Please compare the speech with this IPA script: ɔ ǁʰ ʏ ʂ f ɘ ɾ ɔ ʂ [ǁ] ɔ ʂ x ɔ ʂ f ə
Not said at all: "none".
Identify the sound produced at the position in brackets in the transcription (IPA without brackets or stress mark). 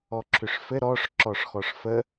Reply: ǁ